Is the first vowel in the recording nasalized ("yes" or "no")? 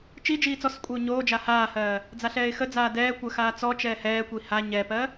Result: no